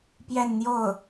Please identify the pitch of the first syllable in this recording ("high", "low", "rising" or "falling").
falling